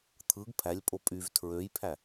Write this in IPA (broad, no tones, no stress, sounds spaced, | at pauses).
t̪ʰ ɯ ɡ pʰ æ lʲ pʼ o pʼ y v tʰ ɹ ø j pʰ æ